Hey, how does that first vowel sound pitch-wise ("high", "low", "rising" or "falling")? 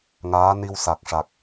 rising